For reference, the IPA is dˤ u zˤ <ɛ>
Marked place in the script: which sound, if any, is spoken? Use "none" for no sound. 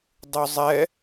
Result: ɛ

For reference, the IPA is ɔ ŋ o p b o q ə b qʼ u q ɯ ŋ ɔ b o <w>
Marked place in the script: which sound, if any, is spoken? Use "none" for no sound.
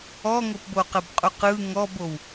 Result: w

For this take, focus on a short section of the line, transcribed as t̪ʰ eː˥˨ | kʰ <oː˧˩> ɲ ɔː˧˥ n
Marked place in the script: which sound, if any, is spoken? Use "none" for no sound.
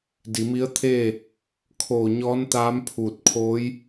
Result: oː˧˩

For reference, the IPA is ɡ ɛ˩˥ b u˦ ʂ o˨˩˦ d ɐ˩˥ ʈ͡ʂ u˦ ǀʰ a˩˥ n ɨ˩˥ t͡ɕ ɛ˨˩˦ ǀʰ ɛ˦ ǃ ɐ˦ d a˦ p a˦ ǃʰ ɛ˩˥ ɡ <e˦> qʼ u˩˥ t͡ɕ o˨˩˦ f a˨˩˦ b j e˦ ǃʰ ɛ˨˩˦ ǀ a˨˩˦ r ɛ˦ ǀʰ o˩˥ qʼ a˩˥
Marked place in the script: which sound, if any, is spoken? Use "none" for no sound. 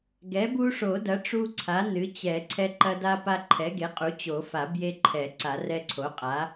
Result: e˩˥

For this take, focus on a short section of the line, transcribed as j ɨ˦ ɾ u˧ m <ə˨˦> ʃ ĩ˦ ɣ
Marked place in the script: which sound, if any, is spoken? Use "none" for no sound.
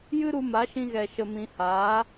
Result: a˨˦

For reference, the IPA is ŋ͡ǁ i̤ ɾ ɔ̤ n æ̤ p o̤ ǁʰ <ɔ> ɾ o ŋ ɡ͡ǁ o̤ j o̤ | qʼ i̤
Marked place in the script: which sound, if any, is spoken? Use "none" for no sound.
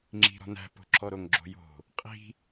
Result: ɔ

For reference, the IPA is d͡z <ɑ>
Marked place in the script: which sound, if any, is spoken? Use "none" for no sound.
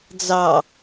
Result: ɑ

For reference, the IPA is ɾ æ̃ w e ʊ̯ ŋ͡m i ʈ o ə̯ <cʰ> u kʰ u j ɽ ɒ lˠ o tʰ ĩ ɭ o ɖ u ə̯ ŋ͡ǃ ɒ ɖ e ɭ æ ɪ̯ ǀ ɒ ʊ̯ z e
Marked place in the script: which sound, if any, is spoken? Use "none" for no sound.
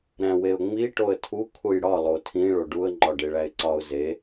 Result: tʰ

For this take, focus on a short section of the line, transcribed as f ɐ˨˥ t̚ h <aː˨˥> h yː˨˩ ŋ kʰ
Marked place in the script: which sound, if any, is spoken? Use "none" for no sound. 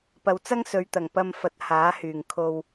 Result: aː˨˥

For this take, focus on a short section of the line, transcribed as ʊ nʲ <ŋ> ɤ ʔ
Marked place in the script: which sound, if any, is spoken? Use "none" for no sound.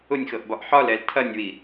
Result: x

